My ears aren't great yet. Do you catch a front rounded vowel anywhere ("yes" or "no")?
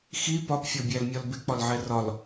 no